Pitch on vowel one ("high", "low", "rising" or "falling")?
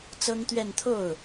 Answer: high